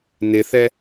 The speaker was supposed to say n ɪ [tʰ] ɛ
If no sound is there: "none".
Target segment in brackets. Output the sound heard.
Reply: θ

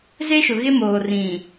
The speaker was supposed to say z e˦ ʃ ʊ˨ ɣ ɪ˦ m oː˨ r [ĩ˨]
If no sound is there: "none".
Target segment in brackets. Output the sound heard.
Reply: ĩ˨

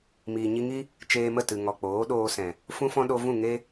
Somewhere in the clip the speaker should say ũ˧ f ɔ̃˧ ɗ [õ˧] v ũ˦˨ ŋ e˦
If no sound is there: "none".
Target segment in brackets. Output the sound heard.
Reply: o˧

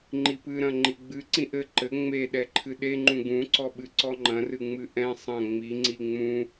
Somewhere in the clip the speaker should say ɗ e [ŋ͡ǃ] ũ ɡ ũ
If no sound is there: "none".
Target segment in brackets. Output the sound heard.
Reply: ŋ͡ǃ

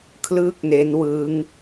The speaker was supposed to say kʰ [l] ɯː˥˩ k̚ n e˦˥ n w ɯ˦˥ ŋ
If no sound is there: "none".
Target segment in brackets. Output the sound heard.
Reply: l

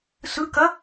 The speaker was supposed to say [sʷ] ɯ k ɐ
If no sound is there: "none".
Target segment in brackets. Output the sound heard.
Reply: s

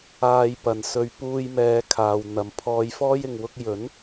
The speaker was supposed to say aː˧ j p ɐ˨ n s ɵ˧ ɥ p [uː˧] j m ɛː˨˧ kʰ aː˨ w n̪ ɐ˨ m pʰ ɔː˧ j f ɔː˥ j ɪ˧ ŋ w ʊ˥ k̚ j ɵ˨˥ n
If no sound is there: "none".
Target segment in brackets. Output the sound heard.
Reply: uː˧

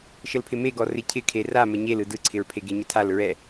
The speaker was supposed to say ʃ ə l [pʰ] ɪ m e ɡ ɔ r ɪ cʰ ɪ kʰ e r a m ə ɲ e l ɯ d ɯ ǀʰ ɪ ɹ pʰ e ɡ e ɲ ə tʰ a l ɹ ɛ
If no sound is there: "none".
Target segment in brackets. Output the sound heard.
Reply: pʰ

